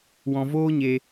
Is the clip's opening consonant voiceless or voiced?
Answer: voiced